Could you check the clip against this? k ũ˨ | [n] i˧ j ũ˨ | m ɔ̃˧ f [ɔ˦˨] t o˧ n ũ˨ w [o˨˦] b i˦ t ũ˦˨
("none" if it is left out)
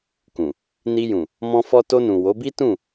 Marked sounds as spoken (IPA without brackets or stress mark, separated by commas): n, ɔ˧, o˨˦